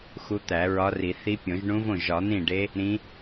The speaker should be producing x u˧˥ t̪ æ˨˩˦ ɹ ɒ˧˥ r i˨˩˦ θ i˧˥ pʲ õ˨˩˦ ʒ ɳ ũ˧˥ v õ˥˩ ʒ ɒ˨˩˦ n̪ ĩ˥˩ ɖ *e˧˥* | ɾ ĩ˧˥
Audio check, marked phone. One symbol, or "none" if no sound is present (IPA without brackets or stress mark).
e˧˥